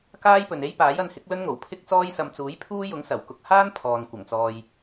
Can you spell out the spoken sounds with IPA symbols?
k aː˥ j p ɵ˨ n e˥ j p aː˨˥ j ɐ˧ n h ɪ˨˥ k̚ l ɵ˥ n ŋ o˨˩ w pʰ ɪ˥ k̚ t͡s ɔː˥ j s ɐ˧ m t͡s uː˨˥ j pʰ uː˥ j ʊ˨˥ ŋ s ɐ˨˩ w k ʊ˨ k̚ h aː˥ n pʰ ɔː˨ n kʷ ɐ˨˩ ŋ t͡s ɔː˨ j

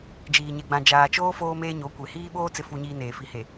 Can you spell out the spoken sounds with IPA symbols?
d͡ʒ iː˨ ɲ e˨ ɡ͡b ã˨ d͡ʒ aː˨ t͡ʃ oː˦ f oː˦ m eː˦ ɲ o˨˦ kʷ e˨ h iː˦ ɓ oː˦ t͡s ɪ˨ f u˨ ɲ iː˨ n eː˨ f i˨ h e˨

